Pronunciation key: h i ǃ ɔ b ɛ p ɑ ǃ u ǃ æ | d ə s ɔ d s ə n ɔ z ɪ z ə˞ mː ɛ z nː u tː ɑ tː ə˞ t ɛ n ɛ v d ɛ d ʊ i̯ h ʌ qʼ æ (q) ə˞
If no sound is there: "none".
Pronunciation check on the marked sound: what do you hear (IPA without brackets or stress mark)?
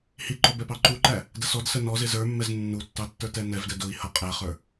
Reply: χ